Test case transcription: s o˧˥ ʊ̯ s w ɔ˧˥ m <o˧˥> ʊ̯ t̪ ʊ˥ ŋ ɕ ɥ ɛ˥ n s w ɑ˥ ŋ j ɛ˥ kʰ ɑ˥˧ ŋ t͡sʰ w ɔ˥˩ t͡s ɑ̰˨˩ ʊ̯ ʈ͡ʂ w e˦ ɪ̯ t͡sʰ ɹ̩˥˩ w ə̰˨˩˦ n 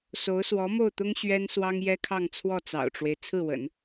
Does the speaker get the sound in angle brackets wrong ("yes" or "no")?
yes